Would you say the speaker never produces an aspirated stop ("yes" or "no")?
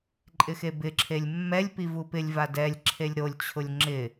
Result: no